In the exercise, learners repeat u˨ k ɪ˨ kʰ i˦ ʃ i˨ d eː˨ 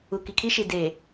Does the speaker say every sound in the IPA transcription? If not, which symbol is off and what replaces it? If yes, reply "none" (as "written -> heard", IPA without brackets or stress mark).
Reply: ɪ˨ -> i˨